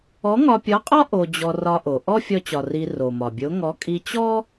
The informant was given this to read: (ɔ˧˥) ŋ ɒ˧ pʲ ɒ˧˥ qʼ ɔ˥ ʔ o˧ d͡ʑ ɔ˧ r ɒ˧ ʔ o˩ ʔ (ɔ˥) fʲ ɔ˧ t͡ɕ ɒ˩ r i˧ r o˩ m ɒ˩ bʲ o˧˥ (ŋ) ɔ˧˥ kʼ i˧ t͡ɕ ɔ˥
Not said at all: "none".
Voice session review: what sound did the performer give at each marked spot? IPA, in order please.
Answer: ɔ˧˥, ɔ˥, ŋ

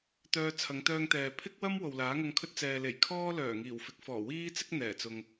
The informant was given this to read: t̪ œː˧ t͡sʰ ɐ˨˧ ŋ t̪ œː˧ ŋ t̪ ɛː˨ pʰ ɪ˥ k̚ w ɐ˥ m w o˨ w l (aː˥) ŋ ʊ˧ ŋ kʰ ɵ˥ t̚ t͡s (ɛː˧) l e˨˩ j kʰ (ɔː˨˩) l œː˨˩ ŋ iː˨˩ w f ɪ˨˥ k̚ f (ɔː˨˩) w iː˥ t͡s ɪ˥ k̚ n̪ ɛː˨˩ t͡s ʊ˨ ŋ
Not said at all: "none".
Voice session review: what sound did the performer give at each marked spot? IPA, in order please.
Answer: aː˨˥, ɛː˨, ɔː˥, ɔː˨˩

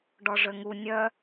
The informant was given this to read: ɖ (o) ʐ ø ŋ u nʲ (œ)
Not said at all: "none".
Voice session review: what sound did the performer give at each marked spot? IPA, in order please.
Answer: ɔ, œ

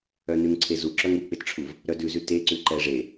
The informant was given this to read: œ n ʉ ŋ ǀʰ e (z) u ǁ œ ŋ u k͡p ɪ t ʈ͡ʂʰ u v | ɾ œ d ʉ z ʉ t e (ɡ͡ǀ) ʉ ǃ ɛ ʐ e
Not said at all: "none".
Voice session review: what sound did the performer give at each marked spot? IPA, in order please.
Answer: z, ǀ

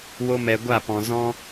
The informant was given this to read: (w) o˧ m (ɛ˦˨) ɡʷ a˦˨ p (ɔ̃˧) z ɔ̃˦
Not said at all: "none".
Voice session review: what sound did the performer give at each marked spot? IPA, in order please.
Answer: w, ɛ˨, ɔ̃˨

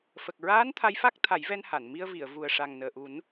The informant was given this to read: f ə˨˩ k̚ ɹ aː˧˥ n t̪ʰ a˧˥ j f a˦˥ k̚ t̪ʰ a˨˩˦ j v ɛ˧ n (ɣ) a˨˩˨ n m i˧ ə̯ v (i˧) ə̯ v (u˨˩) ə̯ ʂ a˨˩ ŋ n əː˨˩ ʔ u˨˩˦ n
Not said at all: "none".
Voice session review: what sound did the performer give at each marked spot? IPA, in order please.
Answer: h, i˨˩˨, u˨˩

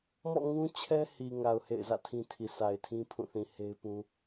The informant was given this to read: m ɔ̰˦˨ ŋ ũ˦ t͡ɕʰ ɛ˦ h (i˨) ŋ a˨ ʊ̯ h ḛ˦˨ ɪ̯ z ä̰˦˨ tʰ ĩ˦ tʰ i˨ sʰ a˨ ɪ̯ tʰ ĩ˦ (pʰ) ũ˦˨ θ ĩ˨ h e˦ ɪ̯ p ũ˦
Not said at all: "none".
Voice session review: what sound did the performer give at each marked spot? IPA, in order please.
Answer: i˨, pʰ

